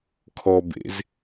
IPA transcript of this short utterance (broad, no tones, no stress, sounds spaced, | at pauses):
kʰ ɔ b ḛ z